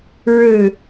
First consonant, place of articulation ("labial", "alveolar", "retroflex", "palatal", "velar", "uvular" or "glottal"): retroflex